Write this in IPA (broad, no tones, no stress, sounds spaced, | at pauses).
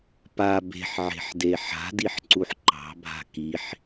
p a b e̤ ħ ʕ e̤ ħ d e ħ a̤ d i ħ ǀ u ħ ǃ ɑ̤ bʱ a̤ k i ħ